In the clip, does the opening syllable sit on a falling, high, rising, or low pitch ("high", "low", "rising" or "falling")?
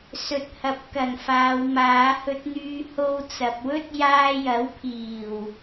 low